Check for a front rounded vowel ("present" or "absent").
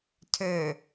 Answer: present